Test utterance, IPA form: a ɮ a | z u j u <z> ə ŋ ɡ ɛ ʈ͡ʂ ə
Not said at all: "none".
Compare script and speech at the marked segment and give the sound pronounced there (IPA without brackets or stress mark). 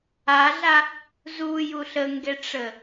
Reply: ɬ